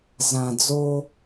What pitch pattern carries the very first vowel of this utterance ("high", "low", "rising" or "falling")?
low